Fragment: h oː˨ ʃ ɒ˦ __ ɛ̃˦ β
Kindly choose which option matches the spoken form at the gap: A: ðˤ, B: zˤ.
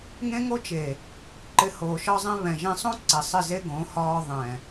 B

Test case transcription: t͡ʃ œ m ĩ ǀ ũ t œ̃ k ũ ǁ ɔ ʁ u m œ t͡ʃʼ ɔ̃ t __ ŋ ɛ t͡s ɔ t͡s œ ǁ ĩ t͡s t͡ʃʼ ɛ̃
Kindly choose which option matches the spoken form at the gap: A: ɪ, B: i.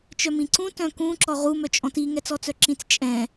B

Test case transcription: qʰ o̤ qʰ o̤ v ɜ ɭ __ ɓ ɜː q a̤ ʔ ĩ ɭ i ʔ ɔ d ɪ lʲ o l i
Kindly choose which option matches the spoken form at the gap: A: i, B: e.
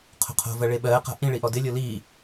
B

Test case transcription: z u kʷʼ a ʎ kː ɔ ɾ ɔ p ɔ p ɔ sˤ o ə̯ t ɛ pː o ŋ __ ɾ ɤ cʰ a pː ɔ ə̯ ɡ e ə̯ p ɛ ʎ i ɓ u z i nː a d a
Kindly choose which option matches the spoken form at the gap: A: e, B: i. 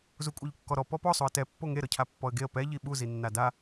A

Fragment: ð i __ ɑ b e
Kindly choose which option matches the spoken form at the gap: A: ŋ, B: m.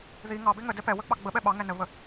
A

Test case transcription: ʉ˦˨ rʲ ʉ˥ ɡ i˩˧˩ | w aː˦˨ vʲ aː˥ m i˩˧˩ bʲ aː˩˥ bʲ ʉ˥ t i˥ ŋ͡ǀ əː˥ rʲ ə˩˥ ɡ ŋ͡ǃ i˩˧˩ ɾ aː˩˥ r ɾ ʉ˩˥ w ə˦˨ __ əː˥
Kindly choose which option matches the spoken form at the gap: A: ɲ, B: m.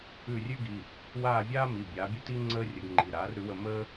B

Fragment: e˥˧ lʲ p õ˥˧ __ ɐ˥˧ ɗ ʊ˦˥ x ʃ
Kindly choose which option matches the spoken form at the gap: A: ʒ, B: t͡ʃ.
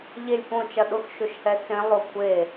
B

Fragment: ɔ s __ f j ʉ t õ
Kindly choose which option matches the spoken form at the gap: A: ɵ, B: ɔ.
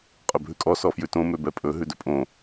B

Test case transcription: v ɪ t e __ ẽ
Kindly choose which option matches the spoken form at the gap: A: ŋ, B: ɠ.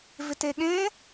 B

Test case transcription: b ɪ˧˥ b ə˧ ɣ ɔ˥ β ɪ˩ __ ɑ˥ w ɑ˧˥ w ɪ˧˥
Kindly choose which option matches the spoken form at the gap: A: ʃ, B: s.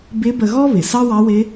B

